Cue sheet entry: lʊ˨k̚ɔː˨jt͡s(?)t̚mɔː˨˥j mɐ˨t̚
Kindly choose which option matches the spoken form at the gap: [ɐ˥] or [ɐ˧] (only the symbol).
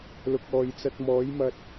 ɐ˧